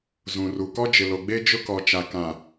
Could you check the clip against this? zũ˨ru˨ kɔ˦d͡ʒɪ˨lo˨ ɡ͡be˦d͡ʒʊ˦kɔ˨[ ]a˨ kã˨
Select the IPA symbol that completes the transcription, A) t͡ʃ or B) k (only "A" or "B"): A